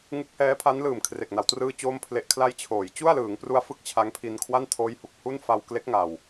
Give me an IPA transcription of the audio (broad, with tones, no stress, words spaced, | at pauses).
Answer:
ŋɯ˦˥k̚hɛː˦˥pʰa˦˥nlɯː˨˩m kʰre˨˩k̚na˩˦wtrɯː˥˩t͡ɕoː˥˩m pʰle˦˥ʔ kʰla˧j t͡ɕʰoː˩˦j t͡ɕu˥˩a̯lɯː˩˦ŋpru˦˥a̯ fɯ˥˩k̚t͡ɕʰa˦˥ŋpʰi˧n kʰwa˥˩ntʰoː˦˥jhu˨˩k̚ hu˥˩n fa˧wkle˦˥k̚ŋa˨˩w